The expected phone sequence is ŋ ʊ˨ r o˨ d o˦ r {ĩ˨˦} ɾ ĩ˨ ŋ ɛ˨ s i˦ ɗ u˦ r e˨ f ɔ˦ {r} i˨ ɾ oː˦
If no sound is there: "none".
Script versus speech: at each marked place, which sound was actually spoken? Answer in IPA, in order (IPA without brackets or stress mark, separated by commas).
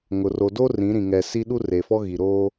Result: ĩ˨˦, ɣ